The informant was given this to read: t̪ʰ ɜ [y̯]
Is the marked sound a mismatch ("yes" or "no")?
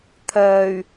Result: no